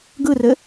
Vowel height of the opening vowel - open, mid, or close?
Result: close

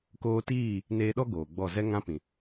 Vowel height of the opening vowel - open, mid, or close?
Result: mid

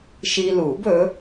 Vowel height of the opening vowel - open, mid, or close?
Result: close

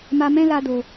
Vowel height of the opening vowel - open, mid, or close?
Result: open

